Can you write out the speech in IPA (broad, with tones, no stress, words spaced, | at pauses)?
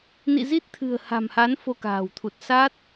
nḭ˧˨zi˦˥t̚t̪ʰɨ̤˨˩ə̯ ha̤˨˩mha˨˦n fo˧ka̤ː˨˩wt̪ʰu˨˩t̚ sa˦˥t̚